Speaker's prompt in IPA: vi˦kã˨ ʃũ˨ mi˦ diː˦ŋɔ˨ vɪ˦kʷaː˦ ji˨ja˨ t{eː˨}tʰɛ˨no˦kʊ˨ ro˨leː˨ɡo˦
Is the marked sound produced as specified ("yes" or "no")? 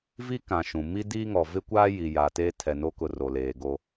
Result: no